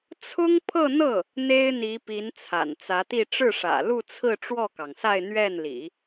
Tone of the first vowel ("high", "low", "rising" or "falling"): high